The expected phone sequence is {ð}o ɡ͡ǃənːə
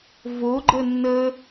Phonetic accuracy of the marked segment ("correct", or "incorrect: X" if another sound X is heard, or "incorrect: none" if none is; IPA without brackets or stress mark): incorrect: v